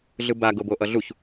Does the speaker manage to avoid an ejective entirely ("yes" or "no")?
yes